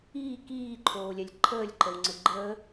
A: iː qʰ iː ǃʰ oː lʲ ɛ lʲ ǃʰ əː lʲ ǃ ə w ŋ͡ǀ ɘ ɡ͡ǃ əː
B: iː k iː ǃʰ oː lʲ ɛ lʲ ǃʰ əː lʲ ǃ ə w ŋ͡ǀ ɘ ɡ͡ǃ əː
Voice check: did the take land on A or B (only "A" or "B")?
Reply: B